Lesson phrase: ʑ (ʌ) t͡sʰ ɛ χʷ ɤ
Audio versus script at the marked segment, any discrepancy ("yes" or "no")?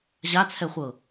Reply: yes